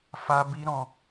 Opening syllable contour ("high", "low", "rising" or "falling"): high